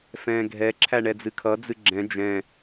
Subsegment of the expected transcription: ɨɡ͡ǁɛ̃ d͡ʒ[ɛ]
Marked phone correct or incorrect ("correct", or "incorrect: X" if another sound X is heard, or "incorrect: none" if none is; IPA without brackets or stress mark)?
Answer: incorrect: ɛ̃